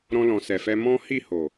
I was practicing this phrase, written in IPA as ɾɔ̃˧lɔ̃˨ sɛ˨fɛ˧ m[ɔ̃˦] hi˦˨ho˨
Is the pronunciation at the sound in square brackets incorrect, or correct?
correct